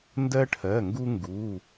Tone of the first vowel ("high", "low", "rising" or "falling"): high